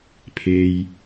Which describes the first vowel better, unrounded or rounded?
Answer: unrounded